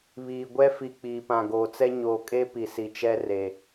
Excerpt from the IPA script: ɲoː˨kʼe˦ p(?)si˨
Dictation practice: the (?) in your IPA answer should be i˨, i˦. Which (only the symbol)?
i˨